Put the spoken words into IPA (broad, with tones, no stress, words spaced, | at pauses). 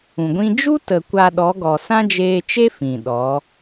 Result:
ũ˨ɡʷĩ˦ d͡ʒu˦tə˨ kʷa˧ɗɔ˨˦ɡɔ˨ sã˦d͡ʒeː˧t͡ʃe˦ fĩ˨ɗɔ˨˦